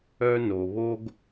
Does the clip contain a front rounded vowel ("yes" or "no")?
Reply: yes